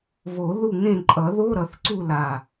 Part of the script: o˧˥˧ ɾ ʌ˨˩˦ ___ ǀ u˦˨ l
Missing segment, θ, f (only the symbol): θ